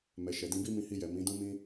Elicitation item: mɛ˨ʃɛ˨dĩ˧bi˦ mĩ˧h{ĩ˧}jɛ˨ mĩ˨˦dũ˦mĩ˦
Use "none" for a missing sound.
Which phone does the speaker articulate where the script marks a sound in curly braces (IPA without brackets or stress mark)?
i˧